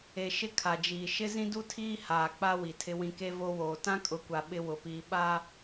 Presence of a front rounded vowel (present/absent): absent